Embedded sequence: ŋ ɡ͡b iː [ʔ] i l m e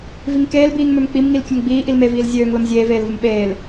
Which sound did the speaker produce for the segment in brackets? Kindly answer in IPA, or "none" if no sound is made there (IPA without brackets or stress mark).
ʔ